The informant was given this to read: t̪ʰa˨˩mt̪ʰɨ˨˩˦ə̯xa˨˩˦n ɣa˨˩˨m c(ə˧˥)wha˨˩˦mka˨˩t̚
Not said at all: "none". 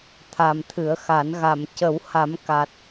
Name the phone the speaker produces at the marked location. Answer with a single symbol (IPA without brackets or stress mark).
ə˨˩˦